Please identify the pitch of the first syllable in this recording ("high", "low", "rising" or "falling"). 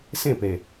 falling